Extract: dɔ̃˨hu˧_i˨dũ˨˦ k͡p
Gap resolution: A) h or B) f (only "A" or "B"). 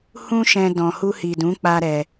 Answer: A